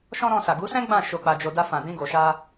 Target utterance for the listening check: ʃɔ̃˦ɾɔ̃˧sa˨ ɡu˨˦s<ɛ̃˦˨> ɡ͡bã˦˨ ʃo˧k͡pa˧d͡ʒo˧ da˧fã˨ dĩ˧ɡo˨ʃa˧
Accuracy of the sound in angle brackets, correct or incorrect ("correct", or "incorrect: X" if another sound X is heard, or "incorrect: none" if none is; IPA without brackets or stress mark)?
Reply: incorrect: ɛ̃˦